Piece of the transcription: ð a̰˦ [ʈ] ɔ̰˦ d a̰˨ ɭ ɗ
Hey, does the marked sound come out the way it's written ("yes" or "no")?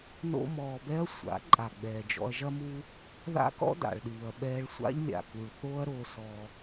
no